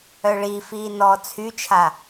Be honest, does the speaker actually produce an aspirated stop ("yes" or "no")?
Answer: yes